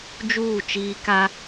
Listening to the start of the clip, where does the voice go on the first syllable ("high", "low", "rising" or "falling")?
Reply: falling